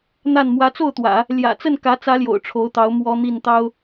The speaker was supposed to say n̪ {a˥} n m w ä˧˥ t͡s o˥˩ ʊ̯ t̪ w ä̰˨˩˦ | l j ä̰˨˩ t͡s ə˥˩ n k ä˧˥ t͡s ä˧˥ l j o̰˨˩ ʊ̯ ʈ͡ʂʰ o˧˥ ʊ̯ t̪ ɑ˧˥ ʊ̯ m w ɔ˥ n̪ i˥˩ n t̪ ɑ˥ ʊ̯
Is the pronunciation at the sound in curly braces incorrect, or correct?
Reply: incorrect